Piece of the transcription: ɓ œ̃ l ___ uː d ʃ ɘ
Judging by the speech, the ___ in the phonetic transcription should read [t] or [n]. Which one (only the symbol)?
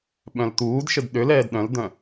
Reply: t